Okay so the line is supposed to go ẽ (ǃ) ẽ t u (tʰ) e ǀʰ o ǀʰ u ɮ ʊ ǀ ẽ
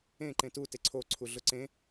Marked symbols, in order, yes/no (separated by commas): yes, no